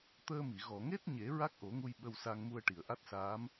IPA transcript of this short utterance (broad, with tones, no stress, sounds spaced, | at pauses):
t̪ əː˧ m i˨˩˨ ɣ ɔ˨˩˨ ŋ e˦˥ t̚ ɲ e˨˩˦ ɹ a˦˥ k̚ ʔ o˨˩˦ ŋ u˧ j ɓ ə˧ w s a˧ ŋ m u˧ ə̯ ʈ i˨˩˨ ə̯ ʔ a˦˥ t̚ s aː˧˥ m